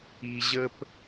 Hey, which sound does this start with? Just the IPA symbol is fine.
i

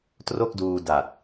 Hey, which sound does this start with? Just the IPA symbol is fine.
t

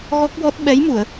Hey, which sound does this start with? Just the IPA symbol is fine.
ɣ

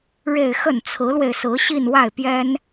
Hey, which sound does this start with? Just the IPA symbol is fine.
ɻ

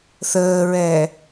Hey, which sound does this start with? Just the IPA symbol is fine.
θ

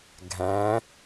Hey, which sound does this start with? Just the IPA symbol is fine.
ɡʱ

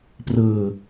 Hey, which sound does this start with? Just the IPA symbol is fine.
p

